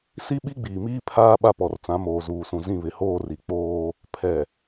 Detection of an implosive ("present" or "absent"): present